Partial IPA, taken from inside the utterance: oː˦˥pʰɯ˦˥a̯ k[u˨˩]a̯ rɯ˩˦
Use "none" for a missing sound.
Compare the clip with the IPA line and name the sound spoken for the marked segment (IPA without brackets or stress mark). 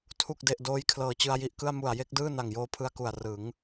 u˨˩